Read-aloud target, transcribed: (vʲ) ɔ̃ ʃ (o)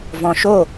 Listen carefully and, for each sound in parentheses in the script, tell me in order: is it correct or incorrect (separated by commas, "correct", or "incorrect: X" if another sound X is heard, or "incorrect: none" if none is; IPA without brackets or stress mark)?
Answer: incorrect: v, correct